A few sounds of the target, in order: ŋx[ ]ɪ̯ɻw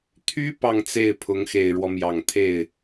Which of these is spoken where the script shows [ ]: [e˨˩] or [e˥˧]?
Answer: e˨˩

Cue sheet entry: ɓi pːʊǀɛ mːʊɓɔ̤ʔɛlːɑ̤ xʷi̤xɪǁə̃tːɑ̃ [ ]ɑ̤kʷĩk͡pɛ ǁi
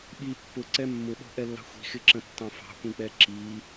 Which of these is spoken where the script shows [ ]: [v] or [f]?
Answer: f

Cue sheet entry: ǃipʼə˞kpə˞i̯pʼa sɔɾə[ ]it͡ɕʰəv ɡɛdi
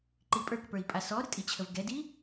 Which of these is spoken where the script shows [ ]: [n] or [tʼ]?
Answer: tʼ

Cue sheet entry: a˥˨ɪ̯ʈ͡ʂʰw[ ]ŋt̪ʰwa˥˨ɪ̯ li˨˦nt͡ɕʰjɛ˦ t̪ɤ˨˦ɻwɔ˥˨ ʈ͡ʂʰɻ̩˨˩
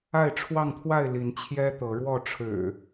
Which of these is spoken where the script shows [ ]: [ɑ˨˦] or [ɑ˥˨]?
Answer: ɑ˥˨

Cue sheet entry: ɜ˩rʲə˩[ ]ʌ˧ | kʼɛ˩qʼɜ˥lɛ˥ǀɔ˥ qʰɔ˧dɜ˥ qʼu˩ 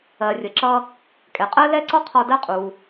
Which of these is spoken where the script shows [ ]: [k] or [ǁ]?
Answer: ǁ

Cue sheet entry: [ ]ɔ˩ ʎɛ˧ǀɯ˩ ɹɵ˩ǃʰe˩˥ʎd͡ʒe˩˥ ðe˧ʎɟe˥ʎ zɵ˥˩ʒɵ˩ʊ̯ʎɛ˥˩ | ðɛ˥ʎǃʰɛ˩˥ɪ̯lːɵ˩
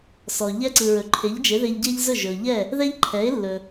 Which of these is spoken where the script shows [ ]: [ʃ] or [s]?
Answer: s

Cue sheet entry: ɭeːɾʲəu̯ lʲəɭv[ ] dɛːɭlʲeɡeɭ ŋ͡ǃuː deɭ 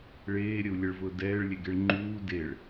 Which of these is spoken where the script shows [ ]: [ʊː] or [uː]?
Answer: ʊː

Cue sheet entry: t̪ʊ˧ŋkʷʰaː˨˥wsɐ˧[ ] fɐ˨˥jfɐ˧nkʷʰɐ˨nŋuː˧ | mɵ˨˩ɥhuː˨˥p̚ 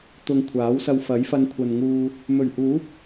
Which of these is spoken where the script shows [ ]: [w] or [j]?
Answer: w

